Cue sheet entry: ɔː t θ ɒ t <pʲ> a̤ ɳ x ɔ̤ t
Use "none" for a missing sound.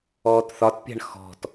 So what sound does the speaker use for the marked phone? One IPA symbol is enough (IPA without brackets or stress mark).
pʲ